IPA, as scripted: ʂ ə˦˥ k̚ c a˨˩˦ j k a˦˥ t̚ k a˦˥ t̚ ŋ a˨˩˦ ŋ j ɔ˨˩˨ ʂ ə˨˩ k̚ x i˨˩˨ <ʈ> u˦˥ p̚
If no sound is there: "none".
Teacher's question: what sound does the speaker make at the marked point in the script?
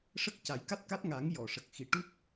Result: ʈ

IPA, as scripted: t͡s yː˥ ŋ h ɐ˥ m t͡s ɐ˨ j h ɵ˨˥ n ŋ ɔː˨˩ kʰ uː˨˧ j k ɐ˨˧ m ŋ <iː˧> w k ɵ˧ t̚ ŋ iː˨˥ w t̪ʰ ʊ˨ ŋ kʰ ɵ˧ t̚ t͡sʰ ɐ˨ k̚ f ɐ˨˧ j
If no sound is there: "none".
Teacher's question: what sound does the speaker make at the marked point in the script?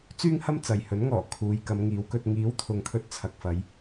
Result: iː˨˥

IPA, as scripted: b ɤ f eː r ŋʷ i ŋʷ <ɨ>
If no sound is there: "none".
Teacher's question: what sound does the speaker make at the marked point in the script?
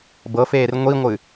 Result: ɨ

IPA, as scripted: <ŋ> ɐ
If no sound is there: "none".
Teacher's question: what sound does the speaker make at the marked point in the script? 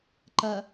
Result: ǃ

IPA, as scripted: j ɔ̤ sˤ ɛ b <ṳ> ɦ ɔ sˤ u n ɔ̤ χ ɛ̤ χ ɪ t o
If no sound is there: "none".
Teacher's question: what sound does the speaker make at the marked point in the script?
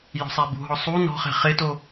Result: ṳ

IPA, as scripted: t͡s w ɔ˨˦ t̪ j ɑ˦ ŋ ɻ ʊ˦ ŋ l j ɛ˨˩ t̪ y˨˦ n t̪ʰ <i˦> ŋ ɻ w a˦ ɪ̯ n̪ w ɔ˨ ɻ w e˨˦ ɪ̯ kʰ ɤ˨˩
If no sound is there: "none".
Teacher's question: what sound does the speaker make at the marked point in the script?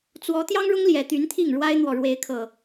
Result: i˥˨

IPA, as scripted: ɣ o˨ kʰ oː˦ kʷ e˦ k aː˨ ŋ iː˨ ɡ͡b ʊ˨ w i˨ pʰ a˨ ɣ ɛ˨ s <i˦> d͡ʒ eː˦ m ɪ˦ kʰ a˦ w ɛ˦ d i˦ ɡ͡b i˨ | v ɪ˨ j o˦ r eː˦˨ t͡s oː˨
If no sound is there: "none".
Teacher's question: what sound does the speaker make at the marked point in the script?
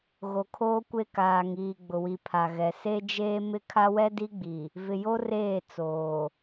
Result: e˦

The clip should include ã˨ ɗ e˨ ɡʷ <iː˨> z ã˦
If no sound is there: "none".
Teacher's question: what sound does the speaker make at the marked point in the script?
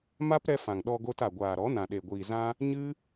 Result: iː˨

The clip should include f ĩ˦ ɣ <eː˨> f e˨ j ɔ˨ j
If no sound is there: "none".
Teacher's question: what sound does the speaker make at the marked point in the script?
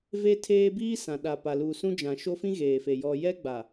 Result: eː˨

